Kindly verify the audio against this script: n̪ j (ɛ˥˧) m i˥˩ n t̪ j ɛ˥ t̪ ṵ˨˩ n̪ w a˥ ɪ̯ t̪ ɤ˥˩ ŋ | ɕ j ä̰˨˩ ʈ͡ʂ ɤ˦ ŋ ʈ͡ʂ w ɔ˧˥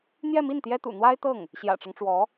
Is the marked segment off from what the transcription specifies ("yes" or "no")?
no